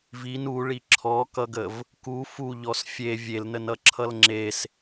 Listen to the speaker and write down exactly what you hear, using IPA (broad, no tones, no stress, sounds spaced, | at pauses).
v i n u ɭ i ǁʰ ɔ k ʌ ɡ ə v | k u f u ʎ ɔ s fʲ e vʲ e l n ə n ʌ ǁʰ ʌ l ŋ͡ǁ e s